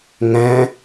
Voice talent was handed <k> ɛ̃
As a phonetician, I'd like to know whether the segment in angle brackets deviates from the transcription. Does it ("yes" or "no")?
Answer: yes